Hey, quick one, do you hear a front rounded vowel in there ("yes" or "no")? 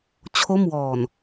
no